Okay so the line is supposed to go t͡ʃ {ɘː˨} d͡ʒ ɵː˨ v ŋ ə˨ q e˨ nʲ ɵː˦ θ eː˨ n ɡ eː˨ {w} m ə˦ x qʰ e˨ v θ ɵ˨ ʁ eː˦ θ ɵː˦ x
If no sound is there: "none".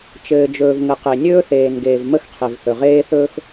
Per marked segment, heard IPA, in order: ɘː˨, v

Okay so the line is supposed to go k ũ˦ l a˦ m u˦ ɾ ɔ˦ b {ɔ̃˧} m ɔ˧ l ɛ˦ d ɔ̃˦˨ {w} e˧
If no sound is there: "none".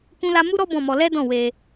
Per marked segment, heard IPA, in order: ɔ̃˦˨, w

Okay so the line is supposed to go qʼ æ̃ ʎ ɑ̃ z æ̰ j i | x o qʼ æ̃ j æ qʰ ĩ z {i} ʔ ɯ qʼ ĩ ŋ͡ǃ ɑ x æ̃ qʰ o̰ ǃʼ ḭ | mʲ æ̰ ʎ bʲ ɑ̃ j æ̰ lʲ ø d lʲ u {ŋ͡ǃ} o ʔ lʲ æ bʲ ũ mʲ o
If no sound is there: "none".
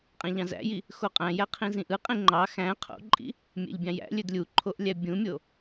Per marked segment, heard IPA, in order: ĩ, ǃʰ

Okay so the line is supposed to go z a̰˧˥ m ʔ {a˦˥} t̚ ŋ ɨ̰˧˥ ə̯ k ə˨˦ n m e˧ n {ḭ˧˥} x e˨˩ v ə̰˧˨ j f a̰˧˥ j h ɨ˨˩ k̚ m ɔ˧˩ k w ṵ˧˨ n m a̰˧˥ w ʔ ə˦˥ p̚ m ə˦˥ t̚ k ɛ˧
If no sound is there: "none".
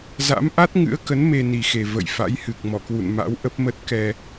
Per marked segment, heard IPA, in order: a˦˥, i˨˩

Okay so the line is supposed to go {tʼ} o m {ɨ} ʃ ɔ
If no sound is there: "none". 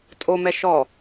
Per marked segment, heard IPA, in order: tʼ, ɛ

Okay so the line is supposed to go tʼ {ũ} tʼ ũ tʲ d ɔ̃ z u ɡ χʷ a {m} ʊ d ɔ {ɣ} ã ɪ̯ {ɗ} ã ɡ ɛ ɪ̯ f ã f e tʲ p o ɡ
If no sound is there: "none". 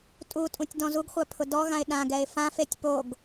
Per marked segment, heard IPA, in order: u, pʰ, ɣ, ɗ

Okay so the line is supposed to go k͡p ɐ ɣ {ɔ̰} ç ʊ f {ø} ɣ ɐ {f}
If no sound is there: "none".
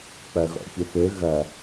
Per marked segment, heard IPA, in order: ɔ̰, ø, none

